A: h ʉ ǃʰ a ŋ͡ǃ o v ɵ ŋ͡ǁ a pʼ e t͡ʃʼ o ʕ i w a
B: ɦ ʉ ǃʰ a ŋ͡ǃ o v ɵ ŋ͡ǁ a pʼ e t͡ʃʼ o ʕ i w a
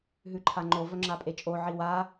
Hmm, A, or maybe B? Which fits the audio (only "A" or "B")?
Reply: B